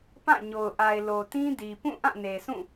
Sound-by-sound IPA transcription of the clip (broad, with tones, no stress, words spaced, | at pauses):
pã˦˨ɲo˨ʊ̯ʔa˨ɪ̯ lo˨tĩ˦di˨ pũ˦˨ʔã˦˨ne˨sũ˦˨